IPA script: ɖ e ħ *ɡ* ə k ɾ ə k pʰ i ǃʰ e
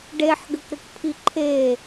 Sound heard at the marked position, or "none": ɡ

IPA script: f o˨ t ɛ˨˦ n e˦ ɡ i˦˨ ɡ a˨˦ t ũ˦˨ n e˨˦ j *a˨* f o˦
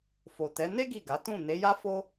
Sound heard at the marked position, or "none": a˦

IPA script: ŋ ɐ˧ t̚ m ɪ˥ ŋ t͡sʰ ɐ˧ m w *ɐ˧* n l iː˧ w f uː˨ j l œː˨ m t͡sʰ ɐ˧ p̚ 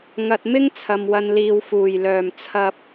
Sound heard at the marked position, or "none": ɐ˧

